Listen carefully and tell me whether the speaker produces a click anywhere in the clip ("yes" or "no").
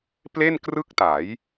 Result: no